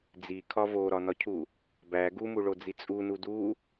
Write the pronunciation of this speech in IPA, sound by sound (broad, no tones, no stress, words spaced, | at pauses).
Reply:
d͡zikʰɒ voɾɒnɒcʰu | bæ ɡumuɭod͡zi t͡sʼunu du